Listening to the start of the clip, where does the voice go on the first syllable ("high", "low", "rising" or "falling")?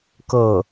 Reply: falling